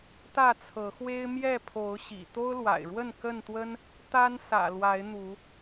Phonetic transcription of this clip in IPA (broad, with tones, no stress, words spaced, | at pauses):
t̪ä˥˨t͡sʰɤ˨˦xwe˦ɪ̯ mjɛ˥˨pʰo˨˦ʊ̯ ɕḭ˨˩ t̪o˦ʊ̯lwa̰˨˩ɪ̯ɻwə˥˨n kə˥˨nt̪wə˦n | t̪a˦n sä̰˨˩lwa˨˦ɪ̯ n̪u˨˦